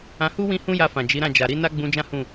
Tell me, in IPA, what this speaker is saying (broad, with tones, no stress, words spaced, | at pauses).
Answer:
ã˧hu˦ wĩ˦hũ˦ja˧fã˨ d͡ʒi˨˦ɾã˦˨ d͡ʒa˨ɾi˨˦ na˦ɡ͡bũ˧d͡ʒã˦ hũ˦˨